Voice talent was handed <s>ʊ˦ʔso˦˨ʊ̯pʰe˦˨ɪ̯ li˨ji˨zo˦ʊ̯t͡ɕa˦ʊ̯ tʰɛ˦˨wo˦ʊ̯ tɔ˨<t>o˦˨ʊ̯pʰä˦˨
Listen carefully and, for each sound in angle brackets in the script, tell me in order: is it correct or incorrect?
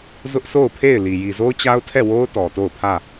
incorrect: z, correct

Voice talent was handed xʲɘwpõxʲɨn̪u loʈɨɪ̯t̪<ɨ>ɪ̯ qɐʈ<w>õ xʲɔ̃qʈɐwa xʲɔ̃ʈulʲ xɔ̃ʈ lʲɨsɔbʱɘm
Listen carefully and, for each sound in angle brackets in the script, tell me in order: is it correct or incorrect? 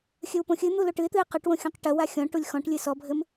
correct, correct

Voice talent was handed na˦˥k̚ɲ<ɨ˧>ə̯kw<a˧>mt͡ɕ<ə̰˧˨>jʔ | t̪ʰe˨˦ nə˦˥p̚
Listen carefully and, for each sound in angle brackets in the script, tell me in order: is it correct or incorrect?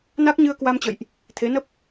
correct, correct, correct

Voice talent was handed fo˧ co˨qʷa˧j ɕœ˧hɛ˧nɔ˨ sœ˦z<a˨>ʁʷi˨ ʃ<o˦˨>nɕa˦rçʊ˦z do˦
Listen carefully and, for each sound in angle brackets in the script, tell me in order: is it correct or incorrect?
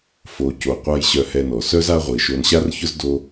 incorrect: a˦, incorrect: o˧

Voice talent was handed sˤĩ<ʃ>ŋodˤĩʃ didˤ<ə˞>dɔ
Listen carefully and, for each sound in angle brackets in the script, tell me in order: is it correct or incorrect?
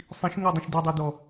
correct, correct

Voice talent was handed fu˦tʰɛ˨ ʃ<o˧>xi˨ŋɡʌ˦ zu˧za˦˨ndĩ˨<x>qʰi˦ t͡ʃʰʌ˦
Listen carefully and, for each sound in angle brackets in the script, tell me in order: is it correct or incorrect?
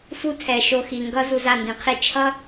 correct, incorrect: none

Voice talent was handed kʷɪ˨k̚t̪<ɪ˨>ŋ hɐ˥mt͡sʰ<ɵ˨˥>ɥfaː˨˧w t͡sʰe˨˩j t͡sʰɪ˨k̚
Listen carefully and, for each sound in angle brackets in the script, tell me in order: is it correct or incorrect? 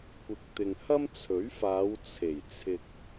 correct, correct

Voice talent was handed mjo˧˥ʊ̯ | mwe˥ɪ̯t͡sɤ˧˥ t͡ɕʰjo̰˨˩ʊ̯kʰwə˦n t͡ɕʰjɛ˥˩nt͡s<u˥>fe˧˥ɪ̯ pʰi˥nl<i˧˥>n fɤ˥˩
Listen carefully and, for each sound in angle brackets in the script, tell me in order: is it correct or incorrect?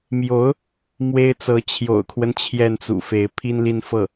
incorrect: ṵ˨˩, incorrect: i˥˧

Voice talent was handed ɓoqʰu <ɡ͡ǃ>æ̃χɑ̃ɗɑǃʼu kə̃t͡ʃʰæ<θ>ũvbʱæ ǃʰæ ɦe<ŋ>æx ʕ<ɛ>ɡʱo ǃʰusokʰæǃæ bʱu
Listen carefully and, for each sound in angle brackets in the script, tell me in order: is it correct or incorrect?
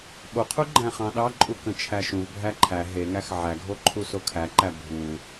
correct, incorrect: ʃ, correct, incorrect: æ

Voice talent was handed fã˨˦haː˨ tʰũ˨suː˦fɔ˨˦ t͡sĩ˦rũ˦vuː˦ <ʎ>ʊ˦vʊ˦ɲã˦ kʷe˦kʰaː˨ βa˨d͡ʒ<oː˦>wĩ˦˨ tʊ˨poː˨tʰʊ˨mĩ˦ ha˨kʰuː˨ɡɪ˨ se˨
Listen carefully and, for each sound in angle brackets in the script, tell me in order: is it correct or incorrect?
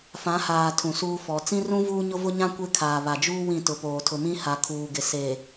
incorrect: ɲ, incorrect: uː˦

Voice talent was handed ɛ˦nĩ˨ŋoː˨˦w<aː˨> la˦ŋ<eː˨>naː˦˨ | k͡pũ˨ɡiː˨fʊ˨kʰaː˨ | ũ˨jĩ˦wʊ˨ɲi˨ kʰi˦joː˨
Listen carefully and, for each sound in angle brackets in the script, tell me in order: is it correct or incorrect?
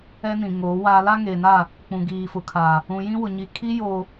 incorrect: aː˦, correct

